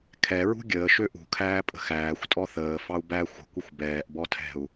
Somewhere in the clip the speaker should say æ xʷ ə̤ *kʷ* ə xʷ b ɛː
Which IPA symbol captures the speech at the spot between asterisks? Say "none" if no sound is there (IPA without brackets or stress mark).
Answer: kʷ